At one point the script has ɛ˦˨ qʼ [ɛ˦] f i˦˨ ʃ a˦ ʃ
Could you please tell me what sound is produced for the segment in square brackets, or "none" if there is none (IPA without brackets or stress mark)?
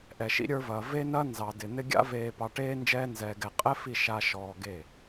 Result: ɛ˦